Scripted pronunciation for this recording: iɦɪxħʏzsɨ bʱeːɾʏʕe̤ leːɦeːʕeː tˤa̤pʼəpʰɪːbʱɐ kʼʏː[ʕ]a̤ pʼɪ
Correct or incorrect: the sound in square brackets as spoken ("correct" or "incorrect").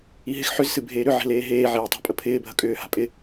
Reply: incorrect